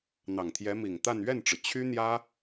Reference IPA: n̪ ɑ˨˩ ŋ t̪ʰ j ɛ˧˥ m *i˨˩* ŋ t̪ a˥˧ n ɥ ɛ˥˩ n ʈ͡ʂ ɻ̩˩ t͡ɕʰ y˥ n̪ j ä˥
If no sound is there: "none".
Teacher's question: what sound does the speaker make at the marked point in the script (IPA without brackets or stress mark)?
i˨˩